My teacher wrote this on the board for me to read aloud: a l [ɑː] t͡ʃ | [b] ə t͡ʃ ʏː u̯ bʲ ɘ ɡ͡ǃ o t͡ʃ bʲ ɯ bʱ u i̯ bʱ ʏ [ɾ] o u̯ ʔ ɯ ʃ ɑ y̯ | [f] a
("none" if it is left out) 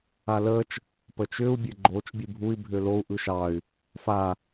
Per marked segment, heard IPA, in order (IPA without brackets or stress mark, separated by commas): əː, p, l, f